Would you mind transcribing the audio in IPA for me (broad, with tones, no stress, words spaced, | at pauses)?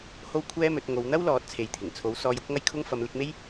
ho˥wkʷʰɛː˥mɵ˨˥t̚ ŋo˨˧w n̪ɐ˥wlɔː˨˥t̚ t͡sʰe˨jt̪ʰɪ˨˩ŋt͡sʰo˨˥w sɔː˧jʊ˥k̚ŋɐ˥jkʰʊ˥ŋ fɐ˨˧mlɪ˨˥k̚me˥j